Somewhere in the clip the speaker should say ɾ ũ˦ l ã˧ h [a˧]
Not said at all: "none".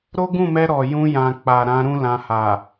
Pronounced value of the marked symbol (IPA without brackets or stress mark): a˨